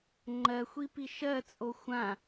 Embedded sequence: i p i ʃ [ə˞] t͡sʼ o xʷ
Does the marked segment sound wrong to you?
yes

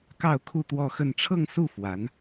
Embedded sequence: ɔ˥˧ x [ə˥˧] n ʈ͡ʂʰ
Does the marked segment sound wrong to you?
no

